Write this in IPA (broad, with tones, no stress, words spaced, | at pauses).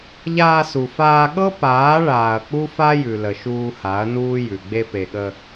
ʎaː˧su˨ faː˧ ɠɤ˦ paː˨˦ ɭaː˨ɐ̯k͡pu˦fa˦jʉ˨ lə˨ʃuː˧ha˨˦ɐ̯nuː˦ jʉ˨ ɡ͡be˧pe˨ɠə˧